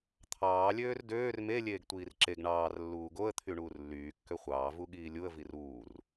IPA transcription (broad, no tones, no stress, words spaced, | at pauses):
t̪ʰɑː lʲøːrdøːr me lʲeːɡtʷiːrǁeɡ ɳɑːr lːuːɡoə̯ t̪ʰyɳuːrlːyː kːøχʷɑː vuɠiːlʲuə̯ viruːr